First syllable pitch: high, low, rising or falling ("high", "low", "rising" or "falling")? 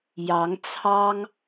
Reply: rising